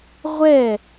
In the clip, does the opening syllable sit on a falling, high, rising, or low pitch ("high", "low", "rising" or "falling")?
falling